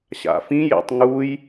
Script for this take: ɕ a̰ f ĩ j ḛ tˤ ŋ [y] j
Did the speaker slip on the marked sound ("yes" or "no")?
yes